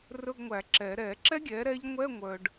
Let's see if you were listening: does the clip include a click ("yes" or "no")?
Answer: yes